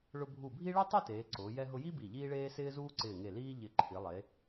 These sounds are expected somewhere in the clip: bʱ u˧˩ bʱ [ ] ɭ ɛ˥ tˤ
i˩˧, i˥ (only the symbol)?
i˥